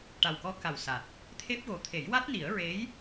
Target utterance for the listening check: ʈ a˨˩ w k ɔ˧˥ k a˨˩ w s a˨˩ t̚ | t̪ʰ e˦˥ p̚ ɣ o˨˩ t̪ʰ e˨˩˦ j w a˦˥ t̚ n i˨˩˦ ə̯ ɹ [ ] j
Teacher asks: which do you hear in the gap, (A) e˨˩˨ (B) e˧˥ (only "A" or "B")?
B